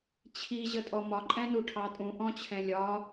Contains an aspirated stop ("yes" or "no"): yes